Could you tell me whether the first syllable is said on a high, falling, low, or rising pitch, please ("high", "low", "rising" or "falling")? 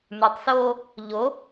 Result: low